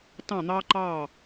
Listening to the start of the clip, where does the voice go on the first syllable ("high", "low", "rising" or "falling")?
falling